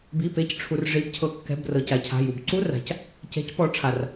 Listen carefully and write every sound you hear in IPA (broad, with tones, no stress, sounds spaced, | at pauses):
b i˩˧˩ p e˩˧˩ c ʈ͡ʂʰ u˩ r ʐ i˩˧ b cʰ ɤ˩˧˩ kː ɛ̤˩˧˩ b r ɤ˩ c a˩˧ cʰ a̤˩˧˩ j u˩ b ǀ u˧˥˧ r a̤˩˧ c | c ɛ̤˩˧ c p ɔ˩˧ ʈ͡ʂʰ a˩ r